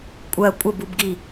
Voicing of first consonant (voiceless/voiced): voiceless